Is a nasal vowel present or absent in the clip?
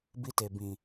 present